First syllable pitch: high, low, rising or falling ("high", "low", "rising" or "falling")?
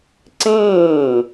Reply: falling